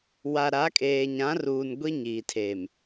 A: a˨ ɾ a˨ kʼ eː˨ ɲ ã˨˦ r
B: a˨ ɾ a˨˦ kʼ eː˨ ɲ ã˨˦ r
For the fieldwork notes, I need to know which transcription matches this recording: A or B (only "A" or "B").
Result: B